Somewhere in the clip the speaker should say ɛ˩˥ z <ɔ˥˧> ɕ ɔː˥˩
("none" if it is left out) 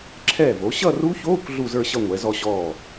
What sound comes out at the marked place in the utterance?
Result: ɔ˥˧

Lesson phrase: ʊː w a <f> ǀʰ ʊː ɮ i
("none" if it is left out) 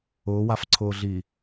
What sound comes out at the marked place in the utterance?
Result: f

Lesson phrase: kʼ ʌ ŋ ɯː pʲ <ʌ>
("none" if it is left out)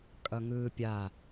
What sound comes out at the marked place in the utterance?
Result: a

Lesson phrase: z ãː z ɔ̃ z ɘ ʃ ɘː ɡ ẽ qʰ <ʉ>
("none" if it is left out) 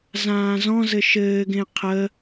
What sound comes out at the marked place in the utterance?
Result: ə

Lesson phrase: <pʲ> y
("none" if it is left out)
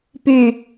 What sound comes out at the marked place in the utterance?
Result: p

